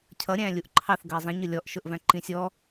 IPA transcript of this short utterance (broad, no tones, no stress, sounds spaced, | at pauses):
cʰ ʌ ɾʲ æ̃ lʲ u ʔ ǃʰ ɑ θ ɡ ʌ i̯ zˤ ĩ ɲ ʊ lʲ ɔ ʔ ʃ ʊ ʔ v æ̃ ǃ ĩ sʲ ɔ